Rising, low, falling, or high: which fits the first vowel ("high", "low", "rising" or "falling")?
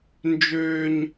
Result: low